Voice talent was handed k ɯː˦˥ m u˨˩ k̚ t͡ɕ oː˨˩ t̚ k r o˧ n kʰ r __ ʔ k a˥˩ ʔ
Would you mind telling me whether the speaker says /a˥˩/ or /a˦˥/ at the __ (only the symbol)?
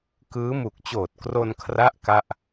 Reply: a˦˥